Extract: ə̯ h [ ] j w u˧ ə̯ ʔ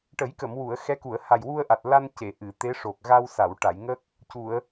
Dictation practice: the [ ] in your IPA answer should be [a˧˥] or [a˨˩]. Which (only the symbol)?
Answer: a˨˩